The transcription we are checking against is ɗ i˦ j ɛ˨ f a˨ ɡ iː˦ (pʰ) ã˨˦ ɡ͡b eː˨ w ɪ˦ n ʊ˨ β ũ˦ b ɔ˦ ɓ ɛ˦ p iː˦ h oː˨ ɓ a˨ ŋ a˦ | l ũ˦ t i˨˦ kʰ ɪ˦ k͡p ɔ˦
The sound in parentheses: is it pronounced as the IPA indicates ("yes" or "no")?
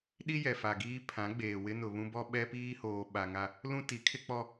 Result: yes